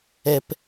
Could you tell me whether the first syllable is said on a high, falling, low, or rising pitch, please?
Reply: low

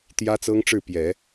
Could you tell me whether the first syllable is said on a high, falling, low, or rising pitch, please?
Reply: high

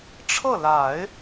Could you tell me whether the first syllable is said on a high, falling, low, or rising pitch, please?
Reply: falling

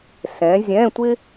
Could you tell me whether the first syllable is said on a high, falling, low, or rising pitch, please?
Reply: rising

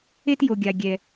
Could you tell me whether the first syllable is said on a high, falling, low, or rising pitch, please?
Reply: high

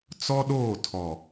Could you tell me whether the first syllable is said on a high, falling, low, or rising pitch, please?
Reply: high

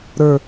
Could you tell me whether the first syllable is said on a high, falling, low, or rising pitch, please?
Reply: falling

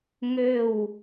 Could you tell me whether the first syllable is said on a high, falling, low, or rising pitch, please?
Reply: falling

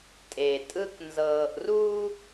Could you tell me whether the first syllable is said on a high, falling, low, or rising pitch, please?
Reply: low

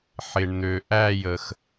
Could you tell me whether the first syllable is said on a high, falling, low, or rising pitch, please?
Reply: low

